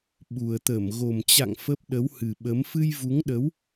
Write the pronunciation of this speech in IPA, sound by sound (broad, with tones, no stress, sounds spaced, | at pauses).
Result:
ɓ u˨˩ ə̯ t̪ ə˧˩ m ɣ o˨˩ m t͡ɕ a̰˧˨ ŋ f ə˦˥ p̚ ɗ ə˨˦ w h ɨ˨˩ ɓ ə˨˦ m f ɨ˧ j v u˨˦ ŋ ɗ ə˨˦ w